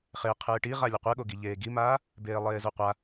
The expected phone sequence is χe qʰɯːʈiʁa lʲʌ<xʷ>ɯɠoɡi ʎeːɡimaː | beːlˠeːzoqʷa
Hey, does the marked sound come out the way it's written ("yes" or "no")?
no